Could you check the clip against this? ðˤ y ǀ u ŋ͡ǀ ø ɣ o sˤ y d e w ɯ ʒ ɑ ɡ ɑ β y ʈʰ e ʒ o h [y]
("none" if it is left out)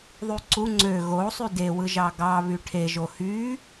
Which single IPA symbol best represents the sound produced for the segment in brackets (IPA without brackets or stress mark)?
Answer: y